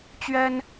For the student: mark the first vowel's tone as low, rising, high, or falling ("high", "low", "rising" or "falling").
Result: high